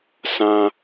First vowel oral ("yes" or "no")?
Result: no